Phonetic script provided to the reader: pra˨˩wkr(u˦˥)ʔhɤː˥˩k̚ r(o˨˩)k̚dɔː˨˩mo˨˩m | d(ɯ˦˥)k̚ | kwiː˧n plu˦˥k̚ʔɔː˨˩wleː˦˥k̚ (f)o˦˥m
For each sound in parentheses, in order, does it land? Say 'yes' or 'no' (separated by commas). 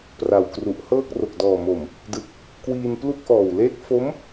no, yes, no, yes